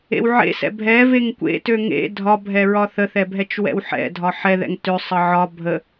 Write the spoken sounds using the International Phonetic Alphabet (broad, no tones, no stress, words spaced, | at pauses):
ḛwʕḛsɛ̰ bʱɛveŋ kʷḛ tøŋḛ dʱɒbʱɛ ɹɒθəθɛ bʱɛt͡ʃwɛ̰wħɛ̰dʱɒ ħɛðɛ̰ŋ tøsˤ əʕɒ bʱə